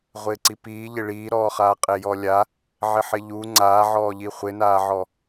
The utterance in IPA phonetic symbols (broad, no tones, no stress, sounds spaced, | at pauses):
ʁʷ ɪː ǀ i p iː ʎ ɪ ɭ iː ɾ ɔː χ aː qʼ e j ɔ lʲ a | ʕ ɪ ħ ɪ ʎ u ŋ͡ǀ aː ʕ ɔː ʎ i χʷ ɪ n aː ʕ ɔ